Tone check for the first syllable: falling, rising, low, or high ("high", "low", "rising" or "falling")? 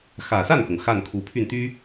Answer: low